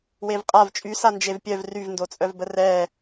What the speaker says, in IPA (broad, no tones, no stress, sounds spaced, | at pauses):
w e v qʼ a v t͡ʃʼ y s a n d͡ʒ e v pʲ œ v r y v n d o t͡sʼ œ v b ə r ɛ